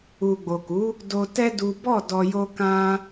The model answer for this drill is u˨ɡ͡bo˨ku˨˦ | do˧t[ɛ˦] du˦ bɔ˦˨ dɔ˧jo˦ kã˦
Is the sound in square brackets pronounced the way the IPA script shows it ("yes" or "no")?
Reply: yes